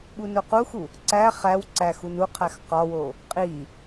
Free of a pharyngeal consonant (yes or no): yes